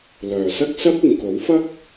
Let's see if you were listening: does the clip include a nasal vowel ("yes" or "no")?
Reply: no